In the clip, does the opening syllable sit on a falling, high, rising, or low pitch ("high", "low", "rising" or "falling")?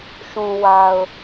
low